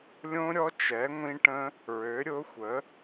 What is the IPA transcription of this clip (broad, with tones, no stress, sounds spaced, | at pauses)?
lʲ õ˦˥ ɾʲ ɔ˦˥ t͡ʃ ɛ˨˥ ŋʷ ĩ˦˥ ʈ ə̃˦˥ | ɹ ø˨˥ ɾʲ ʊ˦˥ xʷ ə˨˥